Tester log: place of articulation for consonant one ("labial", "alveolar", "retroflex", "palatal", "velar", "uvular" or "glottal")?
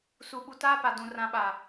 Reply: alveolar